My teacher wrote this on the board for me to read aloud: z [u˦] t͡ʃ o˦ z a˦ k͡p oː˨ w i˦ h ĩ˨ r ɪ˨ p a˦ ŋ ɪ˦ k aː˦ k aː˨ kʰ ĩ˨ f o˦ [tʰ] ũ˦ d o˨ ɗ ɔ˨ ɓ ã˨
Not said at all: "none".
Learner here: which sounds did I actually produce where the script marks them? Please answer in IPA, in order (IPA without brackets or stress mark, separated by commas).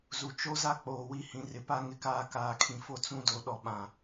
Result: u˨, t͡s